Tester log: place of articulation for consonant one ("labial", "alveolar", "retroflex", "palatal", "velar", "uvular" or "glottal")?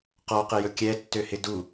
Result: uvular